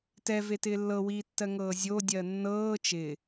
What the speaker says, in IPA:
tɛvetɪː lːɤwiːtːɜ ŋɤːzʲodʲɜ nːɤː t͡ʃɪ

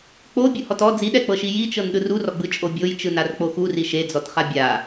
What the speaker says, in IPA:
k͡po bʲuhɔtɔ d͡ziɗɛk͡pɤʃi jit͡ʃɤn ɗɯrurɔɡ͡bɯ t͡ʃʼobʲojt͡ʃɯn ark͡poxuri ʃed͡zɔtχa bʲa

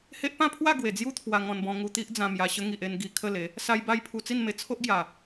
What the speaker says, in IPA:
he˦ʔ pã˥˧pʰwa˥˧ ɡwe˨˩d͡zju˦ t̪ʰwa˧ŋɔ̃˧nbɔ̃˧ ŋu˧t̪i˦ʔd͡zã˧mja˧ ɕə˧ŋi˨ʔ e˧n ɡi˨˩ kʰə˥˧le˨˦ | sa˦jba˥˧jpʰu˧ t͡si˥˧nme˧ t͡sʰo˦ʔɡja˨˩

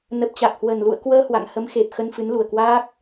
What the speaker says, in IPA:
nə˨˩p̚t͡ɕa˨˩k̚hwə˨˩n lṵ˧˨ə̯kwəː˧ hwa̰˧˨ŋhə˨˦mxe˨˩p̚ xə˧nfɨ˨˦nlu˨˩ə̯kwaː˦˥k̚

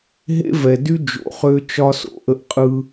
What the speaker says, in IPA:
ɦḛ˦vɛ˨dy˦ d͡ʒo̰˨χø˦t͡ʃɒ˦so̰˨ ʔə˦ʔqʼɯ˦

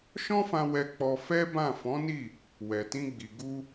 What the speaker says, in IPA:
ʃɔ̃˦fã˧ wɛ˧k͡pɔ˧ fɛ˦bã˦˨ fɔ̃˨˦ni˦˨ | wɛ˨tĩ˧ɡ͡bi˨ ɡu˧

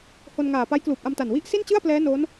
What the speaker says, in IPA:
ho˧nŋaː˨˩ pa˦˥jkluː˨˩p̚ʔa˧mta˨˩n wi˥˩ʔ si˥˩nt͡ɕɯ˥˩a̯plɛː˦˥ noː˦˥n

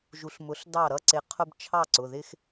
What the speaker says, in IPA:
ʒu˩˥ɬmʊ˩˥ɬ dɑ˥˩ɾʌ˦ ǀɪ˩˥ qʰʊ˦b t͡ʃʰɑ˥˩ǀʊ˩˧˩ ðɪ˦x

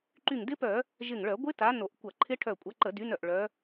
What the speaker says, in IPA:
ǃy˧˩ŋdɪ˦˥pœ˧˩˧ | ʒɪ˧˩ŋɭœ˧˩˧ ɡʷɪ˦˥ta˨˦ no˧˩˧ʔkʷɐ˧˩˧ǃʰɪ˦˥ʈʰœ˧˩ kʷʼɐ˨˦ǃə˧˩˧dy˨˦nœ˧˩ʔ ɭœ˨˦

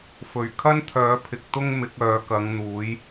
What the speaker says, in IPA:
fɵ˨˩ɥkʰɐ˥n t̪ʰœː˨˥pʰɪ˨k̚ t̪ʊ˥ŋ mɪ˨˥k̚œː˨˧ kɐ˨˧ŋn̪uː˨˥j

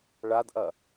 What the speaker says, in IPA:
ɭadʔɐ

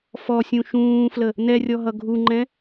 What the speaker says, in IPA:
fɔsʲũ ʃũːflə | nɛrʲɔɦʌ ɡʱuŋ͡ǃɛ̃

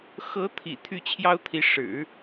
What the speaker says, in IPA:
xɤ˧˥t̪ʰḭ˨˩ t̪ʰy˥˩t͡ɕʰjɑ˥ʊ̯t̪ʰi˧˥ ʂɻ̩˨˩˦

